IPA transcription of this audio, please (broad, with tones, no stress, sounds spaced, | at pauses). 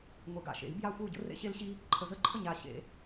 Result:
ŋʷ ɪ˨˩˦ ɡ a̰˨˩ ʃ ḛ˨˩˦ i̯ b j a˥˨ xʷ ɪ˥˨ u̯ ɟ ə̰˧˥ r ḛ˧ ɕ e˧ l ɕ i˧ | ǃʰ ə˨˩ z ə˥˨ ǃʰ ə˥˨ ɲ a˨˩ ɕ ḛ˨˩˦